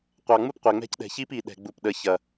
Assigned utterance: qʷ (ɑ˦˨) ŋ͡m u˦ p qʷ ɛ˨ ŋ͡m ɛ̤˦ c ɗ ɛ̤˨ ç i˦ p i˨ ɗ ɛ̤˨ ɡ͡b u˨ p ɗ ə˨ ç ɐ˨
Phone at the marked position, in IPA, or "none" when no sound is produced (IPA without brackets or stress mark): ɑ˨